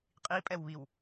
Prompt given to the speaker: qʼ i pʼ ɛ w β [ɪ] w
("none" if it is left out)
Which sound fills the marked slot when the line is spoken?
i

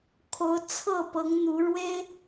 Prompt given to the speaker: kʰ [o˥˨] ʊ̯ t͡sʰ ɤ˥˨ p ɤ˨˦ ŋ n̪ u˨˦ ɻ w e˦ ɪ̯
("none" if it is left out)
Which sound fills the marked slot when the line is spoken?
o˨˦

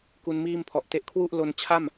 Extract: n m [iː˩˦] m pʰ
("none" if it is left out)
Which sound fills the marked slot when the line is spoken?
iː˥˩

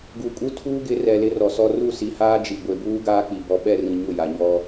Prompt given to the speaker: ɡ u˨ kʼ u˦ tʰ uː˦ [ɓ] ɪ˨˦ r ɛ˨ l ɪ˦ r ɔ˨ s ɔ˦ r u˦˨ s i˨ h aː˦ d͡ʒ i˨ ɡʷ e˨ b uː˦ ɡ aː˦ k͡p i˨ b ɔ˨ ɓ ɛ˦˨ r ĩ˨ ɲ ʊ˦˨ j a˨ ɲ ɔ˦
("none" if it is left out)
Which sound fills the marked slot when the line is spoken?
ɡ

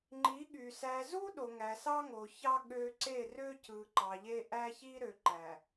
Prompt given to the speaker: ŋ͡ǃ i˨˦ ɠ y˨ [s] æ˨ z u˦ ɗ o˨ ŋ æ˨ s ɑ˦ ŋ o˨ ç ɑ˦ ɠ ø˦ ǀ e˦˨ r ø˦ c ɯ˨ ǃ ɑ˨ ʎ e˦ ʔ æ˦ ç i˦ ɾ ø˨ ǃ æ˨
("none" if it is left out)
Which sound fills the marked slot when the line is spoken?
s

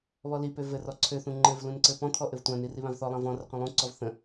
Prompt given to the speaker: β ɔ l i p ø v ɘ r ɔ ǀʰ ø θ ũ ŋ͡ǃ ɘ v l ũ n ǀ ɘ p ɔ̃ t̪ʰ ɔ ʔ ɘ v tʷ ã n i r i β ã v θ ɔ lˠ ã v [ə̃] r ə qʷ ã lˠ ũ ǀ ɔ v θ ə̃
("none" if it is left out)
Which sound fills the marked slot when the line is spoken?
ɔ̃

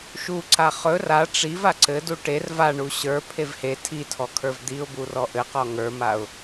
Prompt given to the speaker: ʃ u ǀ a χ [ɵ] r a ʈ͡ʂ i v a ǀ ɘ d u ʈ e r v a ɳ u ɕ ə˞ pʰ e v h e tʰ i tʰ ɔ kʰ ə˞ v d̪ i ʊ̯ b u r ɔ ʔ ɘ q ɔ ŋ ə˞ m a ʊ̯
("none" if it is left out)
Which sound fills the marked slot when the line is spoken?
ɵ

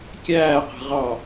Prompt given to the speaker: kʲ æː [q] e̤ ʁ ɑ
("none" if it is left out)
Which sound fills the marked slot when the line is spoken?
q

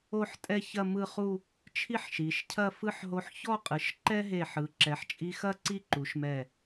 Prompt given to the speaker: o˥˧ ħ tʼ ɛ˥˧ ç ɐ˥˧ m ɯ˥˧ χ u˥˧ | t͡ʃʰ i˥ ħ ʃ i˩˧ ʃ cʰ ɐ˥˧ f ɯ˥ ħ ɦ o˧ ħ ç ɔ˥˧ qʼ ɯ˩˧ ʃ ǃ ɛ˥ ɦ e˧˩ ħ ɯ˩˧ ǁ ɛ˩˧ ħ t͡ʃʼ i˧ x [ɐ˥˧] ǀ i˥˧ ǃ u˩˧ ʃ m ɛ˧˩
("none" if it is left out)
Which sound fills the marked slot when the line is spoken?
ɐ˥˧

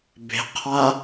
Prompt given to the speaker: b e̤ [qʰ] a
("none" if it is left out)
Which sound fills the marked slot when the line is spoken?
qʰ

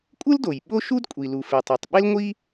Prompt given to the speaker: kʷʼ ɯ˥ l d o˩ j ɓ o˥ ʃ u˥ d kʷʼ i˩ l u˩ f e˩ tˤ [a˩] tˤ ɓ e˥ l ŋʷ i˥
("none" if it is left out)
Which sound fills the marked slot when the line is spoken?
a˩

